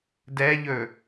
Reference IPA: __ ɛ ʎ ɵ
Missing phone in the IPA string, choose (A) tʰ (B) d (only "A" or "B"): B